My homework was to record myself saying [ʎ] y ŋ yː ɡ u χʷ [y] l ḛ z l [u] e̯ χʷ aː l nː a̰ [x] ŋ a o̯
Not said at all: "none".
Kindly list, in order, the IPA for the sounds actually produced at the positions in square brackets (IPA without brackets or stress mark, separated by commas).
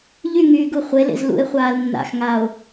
ʎ, e, ṵ, x